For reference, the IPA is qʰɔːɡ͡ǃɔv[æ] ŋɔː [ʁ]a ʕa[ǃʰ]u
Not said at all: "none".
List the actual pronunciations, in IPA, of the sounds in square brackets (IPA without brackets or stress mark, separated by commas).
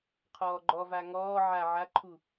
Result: a, ʕ, ǃʰ